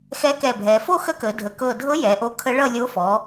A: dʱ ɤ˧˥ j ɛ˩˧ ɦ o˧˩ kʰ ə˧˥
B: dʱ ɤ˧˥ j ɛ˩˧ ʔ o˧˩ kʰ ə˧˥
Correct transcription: B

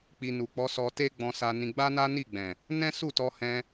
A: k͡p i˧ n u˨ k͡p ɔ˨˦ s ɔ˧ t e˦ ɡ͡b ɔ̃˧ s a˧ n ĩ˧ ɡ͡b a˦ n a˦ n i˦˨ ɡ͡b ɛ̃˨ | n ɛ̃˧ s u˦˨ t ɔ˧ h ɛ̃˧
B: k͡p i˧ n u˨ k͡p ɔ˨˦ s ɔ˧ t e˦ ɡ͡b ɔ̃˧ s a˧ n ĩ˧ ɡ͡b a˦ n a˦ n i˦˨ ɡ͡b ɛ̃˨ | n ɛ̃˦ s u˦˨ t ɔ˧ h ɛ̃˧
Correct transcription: B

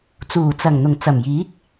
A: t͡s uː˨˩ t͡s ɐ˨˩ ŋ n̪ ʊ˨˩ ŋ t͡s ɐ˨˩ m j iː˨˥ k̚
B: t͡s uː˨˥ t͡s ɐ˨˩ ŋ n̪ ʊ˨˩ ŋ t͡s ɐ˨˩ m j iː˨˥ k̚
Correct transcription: A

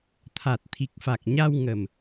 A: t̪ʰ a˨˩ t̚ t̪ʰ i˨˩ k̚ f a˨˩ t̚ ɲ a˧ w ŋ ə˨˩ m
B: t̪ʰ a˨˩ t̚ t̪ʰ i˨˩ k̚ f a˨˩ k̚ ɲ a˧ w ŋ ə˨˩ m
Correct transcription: B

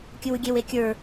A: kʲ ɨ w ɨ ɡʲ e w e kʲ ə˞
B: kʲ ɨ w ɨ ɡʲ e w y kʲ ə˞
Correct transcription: A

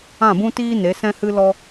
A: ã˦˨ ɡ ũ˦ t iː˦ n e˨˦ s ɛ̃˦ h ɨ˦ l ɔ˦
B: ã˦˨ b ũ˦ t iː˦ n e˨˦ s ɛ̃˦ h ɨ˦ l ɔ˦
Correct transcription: B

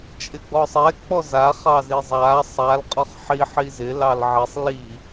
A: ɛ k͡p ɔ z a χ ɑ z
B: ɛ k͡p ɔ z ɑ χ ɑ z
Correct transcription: A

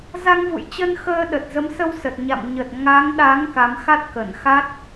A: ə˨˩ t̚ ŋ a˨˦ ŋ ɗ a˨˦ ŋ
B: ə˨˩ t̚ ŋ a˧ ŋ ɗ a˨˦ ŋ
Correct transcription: A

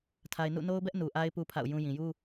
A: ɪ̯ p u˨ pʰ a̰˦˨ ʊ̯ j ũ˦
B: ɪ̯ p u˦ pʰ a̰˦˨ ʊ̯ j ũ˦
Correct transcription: B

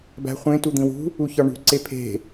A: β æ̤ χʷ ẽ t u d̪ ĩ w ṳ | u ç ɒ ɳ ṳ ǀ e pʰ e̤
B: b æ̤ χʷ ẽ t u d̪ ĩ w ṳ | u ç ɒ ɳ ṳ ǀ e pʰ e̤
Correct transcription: B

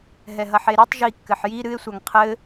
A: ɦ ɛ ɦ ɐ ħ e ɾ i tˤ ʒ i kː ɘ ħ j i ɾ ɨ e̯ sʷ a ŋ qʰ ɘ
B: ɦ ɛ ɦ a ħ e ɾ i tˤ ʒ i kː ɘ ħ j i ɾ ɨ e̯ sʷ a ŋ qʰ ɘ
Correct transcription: A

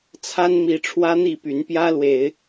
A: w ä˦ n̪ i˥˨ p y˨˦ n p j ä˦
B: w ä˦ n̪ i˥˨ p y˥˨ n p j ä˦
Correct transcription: A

